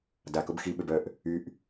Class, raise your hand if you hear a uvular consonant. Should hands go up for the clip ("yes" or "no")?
no